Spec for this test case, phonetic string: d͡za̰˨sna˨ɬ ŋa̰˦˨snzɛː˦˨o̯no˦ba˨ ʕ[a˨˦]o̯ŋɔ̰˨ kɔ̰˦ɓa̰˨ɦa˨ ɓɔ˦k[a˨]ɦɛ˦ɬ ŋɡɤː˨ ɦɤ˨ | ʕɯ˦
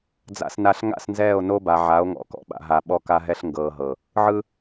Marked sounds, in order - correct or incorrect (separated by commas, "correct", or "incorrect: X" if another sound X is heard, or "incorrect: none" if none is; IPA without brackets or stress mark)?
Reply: correct, incorrect: a˦